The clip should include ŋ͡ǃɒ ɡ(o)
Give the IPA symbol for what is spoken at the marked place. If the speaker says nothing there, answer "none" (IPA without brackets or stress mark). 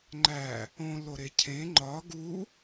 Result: u